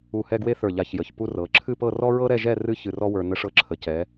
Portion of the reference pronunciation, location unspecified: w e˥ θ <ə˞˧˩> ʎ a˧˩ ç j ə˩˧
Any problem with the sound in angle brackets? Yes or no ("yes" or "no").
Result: no